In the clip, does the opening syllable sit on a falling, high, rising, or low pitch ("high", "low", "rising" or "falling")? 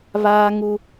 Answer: high